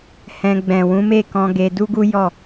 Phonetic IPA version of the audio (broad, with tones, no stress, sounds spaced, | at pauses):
h ɛ̃˧ ɡ͡b ɛ̃˨ w ũ˨˦ m e˦˨ k ɔ̃˧ ɡ e˧ d u˦ ɡ u˦ j ɔ˦˨